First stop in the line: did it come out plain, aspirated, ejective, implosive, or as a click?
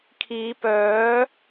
aspirated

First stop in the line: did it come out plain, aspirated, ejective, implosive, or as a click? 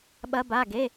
implosive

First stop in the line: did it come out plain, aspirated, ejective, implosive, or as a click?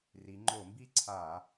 click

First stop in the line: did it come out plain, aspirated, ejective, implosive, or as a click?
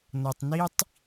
plain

